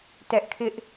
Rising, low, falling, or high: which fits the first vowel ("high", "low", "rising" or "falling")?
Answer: high